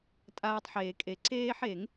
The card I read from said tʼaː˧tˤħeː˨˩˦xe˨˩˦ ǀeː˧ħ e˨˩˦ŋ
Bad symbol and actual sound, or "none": x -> kʼ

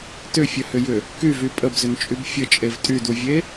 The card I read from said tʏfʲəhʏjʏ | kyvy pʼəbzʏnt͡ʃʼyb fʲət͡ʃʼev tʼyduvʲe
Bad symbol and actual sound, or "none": none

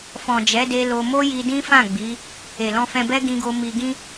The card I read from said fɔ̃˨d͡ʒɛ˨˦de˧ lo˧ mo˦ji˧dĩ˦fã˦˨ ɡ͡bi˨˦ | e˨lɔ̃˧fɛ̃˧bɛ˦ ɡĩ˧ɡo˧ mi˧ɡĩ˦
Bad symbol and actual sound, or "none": none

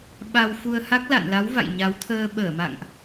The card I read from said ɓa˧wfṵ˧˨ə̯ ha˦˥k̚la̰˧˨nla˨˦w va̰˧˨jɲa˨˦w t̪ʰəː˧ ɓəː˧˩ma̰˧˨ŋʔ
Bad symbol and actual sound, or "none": ṵ˧˨ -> u˧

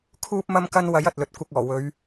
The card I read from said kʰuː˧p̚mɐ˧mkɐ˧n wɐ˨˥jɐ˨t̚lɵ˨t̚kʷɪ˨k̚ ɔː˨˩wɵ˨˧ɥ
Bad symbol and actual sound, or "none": none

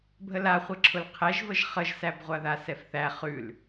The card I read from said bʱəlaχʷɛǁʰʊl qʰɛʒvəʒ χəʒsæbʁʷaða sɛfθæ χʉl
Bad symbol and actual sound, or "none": none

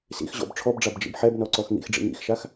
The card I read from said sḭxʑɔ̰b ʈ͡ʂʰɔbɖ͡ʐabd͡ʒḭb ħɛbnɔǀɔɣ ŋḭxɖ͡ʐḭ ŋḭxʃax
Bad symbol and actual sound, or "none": ɣ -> x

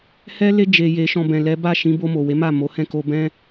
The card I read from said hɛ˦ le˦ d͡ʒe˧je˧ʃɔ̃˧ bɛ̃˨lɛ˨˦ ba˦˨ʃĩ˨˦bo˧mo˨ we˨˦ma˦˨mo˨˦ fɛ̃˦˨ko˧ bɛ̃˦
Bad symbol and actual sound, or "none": f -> h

